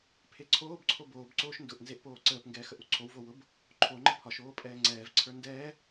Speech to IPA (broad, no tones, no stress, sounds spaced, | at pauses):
pʰ e ǀʰ oː b ǀʰ o b oː b ǀ oː ʃ n d ʊ ʔ n z e ʔ p oː ǀ əː p ŋ ɡ ɛː x ə ʔ u ǀʰ o w v o w ʊ b | ǃʰ o ŋ͡ǃ ə pʰ ɒ ʃ oː pʼ ɛː ŋ͡ǀ ɛː v ǀʰ ə˞ n d ɛː